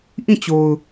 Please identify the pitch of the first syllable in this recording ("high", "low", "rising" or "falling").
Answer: falling